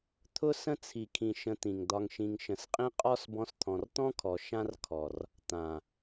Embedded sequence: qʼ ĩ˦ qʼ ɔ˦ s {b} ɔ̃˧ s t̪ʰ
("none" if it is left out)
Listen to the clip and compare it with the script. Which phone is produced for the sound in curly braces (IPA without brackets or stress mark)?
b